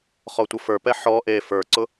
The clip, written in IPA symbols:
χ ɔ tʷ ʌ f ə˞ p ɛ ħ ɔ ʔ e f ə˞ ǀ ʊ

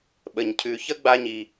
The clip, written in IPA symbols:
ɓ ə˩ ɲ cʰ ʉ˨ ç ə˥ ɡ͡b a˦ ɲ i˨

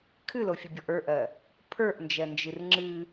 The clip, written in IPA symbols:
kʰ ɨ l o fʲ ɨ bʲ ɔ ʔ ə˞ ʔ ɜ | pʰ ə˞ ʔ n d͡ʒ ɜ n d͡ʒ ɨ r ŋ͡ǁ ɨ

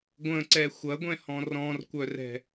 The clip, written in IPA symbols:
ɡʷ ə̃ ǀ ɛ xʷ ɐ ɡʷ ɛ̃ h ɔ̃ r ɔ̃ r kʷ œ r ɛ̤

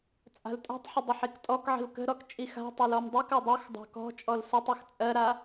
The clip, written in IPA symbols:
t͡sʼ a̤ l tʼ a̤ tˤ ħ ə dˤ ə ħ i k tʼ ɔ k ʕ ə̤ l k ə̤ ɾ ɔ k t͡ʃʼ i x a̤ tˤ ɛ l ɔ m dˤ i k a dˤ u x dˤ a̤ k ɔ̤ t͡ʃʼ ɔ l s ə tˤ ɜ x t͡sʼ ɜ ɾ a

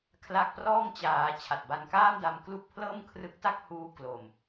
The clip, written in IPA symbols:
kʰ l a˦˥ k̚ p r ɔː˥˩ ŋ t͡ɕ aː˩˦ t͡ɕʰ a˨˩ t̚ b a˧ n k aː˥˩ m d a˧ m k l u˥˩ k̚ pʰ l ɤː˥˩ m kʰ r ɯ˦˥ k̚ t a˥˩ k̚ h uː˧ k l o˨˩ m

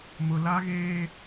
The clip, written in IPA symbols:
m ʊ˨ l a˦ ɣ eː˦

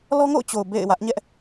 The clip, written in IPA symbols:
l ɔ˦ ŋ o̰˦˨ ʊ̯ t͡ɕ o˨ ʊ̯ b ḛ˦˨ ɪ̯ w ä˦ ʔ ɲ ɛ˦ ʔ

